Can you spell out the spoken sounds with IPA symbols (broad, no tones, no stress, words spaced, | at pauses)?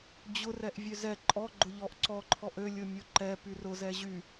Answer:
d͡ʑʊ rɛʔvʲøzɛ ǃʼɔ ɡ͡ǃʊʎɔʔǀɔ ǃʰɔʔø lʲʊmʲoǃɛ pyrʊ zɛʑy